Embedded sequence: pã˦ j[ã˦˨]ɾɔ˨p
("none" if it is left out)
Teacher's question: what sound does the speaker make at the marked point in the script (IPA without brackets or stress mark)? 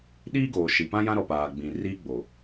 ã˦